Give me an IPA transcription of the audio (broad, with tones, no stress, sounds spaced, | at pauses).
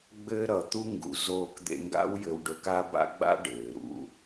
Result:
ɡ͡b ɘː˦ ɾ ʌ˨ t̪ u˦ ŋ ɡ ṵ˨ z oː˧ k d̪ ḛ˧ ŋ ɡ a̰˦ w j ɘ˧ w ɖ ɵ˧ k a˦ b a̰˦ ɡ͡b a̰˦ ɖ ɘː˨ ɾ ṵ˧